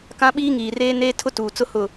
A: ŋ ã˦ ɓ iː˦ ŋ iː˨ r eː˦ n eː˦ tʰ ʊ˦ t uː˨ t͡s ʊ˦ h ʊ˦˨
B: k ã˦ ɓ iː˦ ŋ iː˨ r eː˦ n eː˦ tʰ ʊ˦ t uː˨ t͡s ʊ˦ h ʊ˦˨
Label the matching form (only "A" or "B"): B